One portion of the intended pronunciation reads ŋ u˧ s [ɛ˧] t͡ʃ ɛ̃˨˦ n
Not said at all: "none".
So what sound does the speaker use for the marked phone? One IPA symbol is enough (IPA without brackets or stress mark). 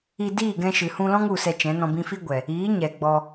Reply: ɛ˧